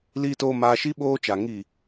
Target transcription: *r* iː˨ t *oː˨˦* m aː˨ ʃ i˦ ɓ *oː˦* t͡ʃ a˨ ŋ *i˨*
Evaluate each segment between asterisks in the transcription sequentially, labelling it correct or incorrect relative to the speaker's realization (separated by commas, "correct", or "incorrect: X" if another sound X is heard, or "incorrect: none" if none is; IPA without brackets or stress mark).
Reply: incorrect: l, incorrect: oː˨, correct, correct